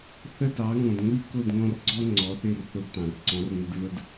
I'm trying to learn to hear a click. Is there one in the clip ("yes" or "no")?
yes